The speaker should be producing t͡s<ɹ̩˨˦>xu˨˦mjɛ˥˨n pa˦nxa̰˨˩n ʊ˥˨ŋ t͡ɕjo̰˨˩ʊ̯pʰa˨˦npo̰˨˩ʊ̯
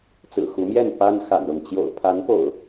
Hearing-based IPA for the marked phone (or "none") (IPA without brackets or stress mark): ɹ̩˨˩